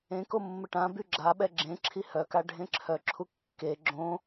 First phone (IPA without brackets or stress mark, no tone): ẽ